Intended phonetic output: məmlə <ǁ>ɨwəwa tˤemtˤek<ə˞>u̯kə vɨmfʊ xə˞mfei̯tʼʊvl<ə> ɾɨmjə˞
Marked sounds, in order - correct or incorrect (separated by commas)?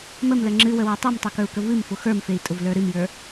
incorrect, correct, incorrect